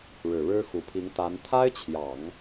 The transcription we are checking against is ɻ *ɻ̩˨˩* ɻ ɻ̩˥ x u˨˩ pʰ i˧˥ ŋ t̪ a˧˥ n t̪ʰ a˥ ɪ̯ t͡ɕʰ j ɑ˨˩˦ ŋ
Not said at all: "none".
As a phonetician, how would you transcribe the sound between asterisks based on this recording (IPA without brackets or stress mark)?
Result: ɻ̩˨˩